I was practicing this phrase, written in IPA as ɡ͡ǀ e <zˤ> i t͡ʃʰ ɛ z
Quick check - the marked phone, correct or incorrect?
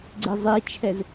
correct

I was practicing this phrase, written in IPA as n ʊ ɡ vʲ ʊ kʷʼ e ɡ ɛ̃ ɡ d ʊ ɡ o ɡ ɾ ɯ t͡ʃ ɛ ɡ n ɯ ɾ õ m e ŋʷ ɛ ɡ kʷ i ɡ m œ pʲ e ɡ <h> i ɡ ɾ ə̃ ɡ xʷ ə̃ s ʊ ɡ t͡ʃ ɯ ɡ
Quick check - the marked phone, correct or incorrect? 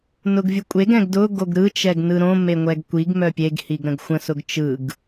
correct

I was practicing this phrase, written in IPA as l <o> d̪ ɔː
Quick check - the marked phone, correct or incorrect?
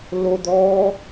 correct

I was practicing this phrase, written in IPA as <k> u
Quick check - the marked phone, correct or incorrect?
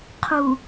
incorrect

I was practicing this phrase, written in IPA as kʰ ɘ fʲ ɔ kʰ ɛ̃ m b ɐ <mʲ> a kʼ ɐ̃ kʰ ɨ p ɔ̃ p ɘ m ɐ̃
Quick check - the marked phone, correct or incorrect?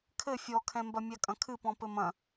correct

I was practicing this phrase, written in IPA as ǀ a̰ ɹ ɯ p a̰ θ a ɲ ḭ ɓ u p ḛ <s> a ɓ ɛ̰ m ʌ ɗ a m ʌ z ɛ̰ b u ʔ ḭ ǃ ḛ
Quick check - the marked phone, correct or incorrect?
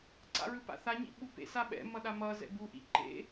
correct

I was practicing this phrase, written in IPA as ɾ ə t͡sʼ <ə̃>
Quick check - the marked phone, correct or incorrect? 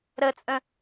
correct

